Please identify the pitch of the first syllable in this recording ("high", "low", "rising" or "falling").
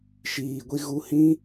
low